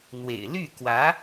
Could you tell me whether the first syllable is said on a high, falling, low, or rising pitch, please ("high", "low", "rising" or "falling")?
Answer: low